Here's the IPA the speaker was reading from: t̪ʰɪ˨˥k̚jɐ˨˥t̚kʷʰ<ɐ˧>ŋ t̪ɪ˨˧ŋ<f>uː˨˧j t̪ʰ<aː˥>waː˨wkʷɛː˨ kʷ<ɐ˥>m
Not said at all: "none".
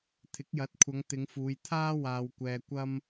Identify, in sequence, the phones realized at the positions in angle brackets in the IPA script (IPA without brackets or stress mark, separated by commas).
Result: ɐ˨˧, f, aː˥, ɐ˥